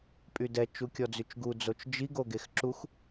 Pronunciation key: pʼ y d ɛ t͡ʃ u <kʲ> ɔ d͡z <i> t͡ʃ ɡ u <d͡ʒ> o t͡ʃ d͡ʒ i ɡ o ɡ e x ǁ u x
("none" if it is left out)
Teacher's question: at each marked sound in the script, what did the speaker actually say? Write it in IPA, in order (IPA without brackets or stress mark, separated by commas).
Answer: kʲ, y, d͡z